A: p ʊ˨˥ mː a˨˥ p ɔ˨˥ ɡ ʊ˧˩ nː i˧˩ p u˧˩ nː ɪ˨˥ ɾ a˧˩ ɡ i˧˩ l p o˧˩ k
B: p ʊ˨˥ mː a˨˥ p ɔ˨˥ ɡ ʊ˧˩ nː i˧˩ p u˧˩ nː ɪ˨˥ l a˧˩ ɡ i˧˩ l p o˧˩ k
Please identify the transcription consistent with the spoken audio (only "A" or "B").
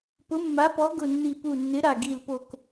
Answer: A